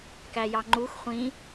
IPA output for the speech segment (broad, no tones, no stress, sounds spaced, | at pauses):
k æ j ɑ ŋ͡ǃ u x χʷ ĩ